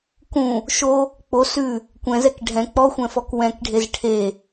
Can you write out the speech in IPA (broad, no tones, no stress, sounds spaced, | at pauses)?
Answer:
k ũ | ʃ o | k͡p o s ʉ | kʷ ɛ̃ z ɛ k ɖʱ ɛ̃ k͡p ɔ xʷ ɛ̃ f ɔ k w ɛ̃ k ɖʱ e z ʈʰ e